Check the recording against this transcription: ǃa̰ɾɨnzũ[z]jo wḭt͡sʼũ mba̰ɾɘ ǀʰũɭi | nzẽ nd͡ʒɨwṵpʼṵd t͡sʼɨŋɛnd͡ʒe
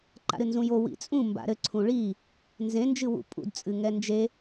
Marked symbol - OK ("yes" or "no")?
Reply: no